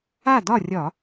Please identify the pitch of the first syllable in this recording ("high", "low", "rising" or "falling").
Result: falling